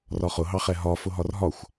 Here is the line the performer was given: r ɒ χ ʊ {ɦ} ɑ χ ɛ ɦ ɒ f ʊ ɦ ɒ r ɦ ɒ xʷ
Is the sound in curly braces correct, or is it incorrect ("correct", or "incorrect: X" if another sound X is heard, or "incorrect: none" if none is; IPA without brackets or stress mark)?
correct